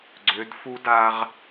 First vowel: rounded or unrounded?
rounded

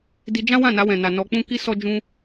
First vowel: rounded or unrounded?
unrounded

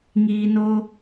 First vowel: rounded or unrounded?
unrounded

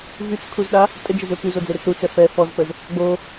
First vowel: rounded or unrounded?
rounded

